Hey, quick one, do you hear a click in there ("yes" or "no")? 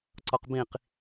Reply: yes